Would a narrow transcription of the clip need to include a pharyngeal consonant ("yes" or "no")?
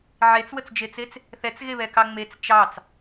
yes